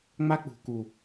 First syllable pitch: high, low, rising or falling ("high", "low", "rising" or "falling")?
high